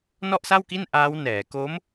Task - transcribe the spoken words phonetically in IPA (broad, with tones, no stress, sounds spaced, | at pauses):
n ɔ˥˩ ʔ s a˥˩ w k i˥˩ n ʔ aː˦˥ w n ɛː˩˦ k o˦˥ m